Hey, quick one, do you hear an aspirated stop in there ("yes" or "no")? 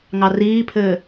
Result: yes